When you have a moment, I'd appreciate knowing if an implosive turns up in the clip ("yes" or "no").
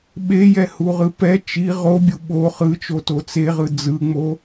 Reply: yes